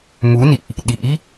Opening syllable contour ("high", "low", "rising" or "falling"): rising